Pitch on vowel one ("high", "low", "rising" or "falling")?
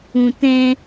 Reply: low